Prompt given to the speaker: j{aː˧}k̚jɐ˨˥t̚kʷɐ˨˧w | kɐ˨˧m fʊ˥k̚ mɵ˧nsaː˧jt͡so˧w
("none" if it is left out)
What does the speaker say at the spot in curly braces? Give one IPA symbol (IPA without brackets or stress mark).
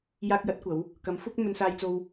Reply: aː˧